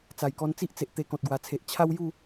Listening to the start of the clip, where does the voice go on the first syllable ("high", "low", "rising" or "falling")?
low